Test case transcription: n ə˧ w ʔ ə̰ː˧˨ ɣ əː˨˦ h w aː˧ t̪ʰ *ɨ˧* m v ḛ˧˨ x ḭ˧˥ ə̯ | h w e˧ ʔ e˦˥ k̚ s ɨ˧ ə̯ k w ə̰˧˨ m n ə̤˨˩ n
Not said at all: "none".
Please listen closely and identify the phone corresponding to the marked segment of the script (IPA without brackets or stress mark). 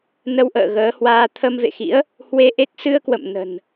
ə˧